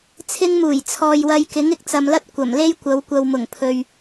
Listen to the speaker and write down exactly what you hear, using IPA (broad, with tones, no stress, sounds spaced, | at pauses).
t͡sʰ ɪ˧ ŋ m uː˨˩ j t͡sʰ ɔː˨ j w ɐ˧ j k ɪ˨˥ ŋ ɪ˨˥ k̚ t͡s ɐ˨ m l ɐ˥ t̚ kʷ ɐ˨˩ m l e˥ j kʷ ɐ˨˧ w kʷ ɐ˨ w m ʊ˨˩ ŋ pʰ ɵ˨ ɥ